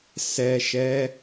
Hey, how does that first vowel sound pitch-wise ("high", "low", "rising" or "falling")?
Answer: low